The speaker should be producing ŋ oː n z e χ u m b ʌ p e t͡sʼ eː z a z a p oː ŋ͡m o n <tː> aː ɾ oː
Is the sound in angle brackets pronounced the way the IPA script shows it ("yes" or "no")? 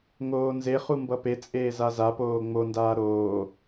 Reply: no